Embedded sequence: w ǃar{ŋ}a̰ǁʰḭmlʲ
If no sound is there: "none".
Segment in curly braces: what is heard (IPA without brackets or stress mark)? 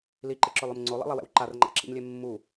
ŋ͡ǃ